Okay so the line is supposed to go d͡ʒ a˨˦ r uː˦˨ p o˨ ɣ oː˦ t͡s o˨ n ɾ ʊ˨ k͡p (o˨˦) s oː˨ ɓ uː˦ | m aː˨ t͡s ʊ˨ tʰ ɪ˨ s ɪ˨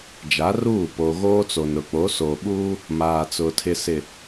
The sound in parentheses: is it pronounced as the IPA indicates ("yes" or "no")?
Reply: yes